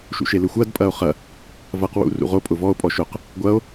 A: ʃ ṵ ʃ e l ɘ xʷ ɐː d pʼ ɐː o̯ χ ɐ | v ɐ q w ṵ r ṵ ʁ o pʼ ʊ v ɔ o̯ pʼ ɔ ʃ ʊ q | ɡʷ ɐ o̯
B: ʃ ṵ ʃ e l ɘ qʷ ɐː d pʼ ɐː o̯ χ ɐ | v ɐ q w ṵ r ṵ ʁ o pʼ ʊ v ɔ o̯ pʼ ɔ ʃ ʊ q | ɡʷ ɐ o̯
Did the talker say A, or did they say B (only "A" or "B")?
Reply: A